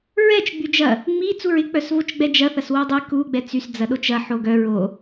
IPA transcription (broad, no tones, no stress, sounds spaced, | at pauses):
ɹ ɛ t͡ʃ ɡ͡b y d͡ʒ ɐ | ŋ͡m i t͡s u ɹ ɪ k͡p œ s v o t͡ʃ ɡ͡b ɛ d͡ʒ ɐ θ ɐ s w o dˤ i k u ɡ͡b ɛ t͡s y s d͡z ɐ ɗ o t͡ʃ ɐ ħ o ɡ œ ɹ o